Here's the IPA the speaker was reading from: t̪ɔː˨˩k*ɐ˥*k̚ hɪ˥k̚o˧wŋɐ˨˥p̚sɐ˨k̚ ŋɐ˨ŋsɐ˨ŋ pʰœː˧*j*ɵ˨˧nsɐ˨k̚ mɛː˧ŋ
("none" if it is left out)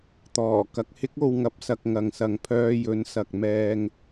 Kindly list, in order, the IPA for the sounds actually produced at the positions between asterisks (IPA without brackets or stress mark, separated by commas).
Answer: ɐ˧, j